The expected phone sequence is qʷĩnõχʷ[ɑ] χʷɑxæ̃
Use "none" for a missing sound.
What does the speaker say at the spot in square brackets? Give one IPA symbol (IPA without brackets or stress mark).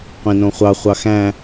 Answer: ɑ